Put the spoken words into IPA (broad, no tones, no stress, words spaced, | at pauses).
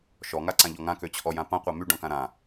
ʃɔŋaǀãʎɔ ŋãkøt͡ɕʰɔjã pãqʷa myɖɔ̃kã ɾã